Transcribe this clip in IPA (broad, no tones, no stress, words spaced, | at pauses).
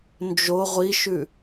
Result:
nd͡ʒo ʁʷiʃʉ